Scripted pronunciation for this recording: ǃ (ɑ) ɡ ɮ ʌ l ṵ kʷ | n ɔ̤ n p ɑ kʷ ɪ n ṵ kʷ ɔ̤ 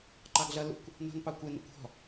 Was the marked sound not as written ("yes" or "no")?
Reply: no